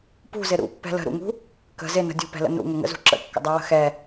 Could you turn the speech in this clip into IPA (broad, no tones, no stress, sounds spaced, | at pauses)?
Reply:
p ṳ z ɪ ɾ ṵ pː ɛ̤ l ə̤ ɾ ṵ ŋ ṳ | k ə̤ z ɪ n ə̤ dʲ ṳ p ɛ̤ l ə̰ n ṵ ŋ ə ŋ ə̰ z ṳ ǁ ə̰ kː ə̰ dˤ ɛ w ə̤ x ɛ